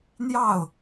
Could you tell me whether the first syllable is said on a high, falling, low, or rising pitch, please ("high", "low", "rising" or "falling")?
falling